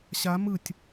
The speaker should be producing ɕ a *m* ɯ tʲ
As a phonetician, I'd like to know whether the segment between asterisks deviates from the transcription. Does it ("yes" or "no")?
no